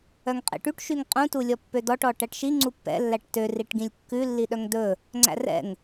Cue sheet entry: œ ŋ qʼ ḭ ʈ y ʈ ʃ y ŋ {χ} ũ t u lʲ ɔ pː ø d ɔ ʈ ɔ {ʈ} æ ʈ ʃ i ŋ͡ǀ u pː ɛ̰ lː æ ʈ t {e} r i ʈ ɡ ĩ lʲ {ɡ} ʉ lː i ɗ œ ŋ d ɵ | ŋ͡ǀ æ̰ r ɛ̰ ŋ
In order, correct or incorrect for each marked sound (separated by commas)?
incorrect, correct, incorrect, incorrect